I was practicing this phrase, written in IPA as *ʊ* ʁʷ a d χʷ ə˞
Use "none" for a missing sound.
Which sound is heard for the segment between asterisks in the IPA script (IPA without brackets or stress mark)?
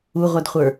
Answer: u